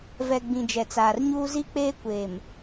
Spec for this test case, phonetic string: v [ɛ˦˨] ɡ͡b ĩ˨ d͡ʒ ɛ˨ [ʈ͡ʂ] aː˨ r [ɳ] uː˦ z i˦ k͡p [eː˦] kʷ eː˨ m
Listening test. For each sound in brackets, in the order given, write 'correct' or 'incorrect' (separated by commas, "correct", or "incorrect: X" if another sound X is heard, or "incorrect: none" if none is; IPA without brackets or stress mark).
incorrect: ɛ˨, incorrect: t͡s, incorrect: ɲ, correct